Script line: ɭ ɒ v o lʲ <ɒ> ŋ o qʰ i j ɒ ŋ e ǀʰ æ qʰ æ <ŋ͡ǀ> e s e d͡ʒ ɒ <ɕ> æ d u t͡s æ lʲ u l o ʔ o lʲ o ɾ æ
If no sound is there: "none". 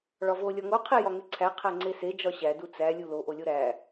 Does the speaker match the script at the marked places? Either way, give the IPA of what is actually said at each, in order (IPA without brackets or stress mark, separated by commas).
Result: ɒ, ŋ͡ǀ, ɕ